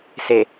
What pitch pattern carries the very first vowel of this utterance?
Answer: low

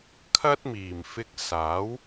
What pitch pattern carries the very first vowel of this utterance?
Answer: high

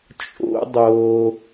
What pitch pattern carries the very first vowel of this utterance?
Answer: high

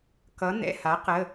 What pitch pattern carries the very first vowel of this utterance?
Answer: rising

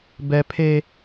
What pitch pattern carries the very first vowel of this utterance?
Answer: high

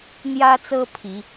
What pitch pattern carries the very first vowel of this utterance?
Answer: high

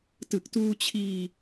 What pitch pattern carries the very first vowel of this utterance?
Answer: low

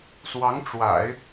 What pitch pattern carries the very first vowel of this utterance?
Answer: rising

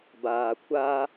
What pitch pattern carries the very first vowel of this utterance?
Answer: low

